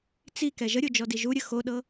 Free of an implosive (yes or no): no